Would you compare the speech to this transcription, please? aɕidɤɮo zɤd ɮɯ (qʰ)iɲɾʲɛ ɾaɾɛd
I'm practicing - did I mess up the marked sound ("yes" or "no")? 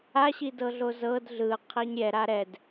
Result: no